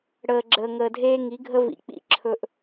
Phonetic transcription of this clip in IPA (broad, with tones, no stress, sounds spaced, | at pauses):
ɽ əː˨ ɡ͡ǁ əː˨ ŋ əː˨ dʱ eː˦ ŋ i˨˦ ɡʱ ə˦ v ḭ˨ k͡p ḭ˦ ǁʰ ɵ˦ ʔ